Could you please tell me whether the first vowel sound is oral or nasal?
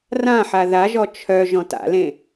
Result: nasal